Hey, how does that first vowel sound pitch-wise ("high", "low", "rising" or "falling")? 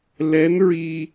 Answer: rising